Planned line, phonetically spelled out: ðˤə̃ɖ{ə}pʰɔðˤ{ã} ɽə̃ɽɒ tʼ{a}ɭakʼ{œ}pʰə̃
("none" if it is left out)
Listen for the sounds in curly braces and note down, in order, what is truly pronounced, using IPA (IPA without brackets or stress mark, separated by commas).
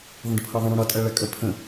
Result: ə, ə̃, a, œ